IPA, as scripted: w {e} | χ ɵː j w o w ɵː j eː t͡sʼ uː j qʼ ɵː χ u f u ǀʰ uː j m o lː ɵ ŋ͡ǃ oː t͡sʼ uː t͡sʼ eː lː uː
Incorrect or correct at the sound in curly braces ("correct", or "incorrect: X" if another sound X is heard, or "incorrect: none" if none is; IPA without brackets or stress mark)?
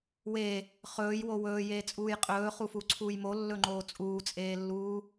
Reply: correct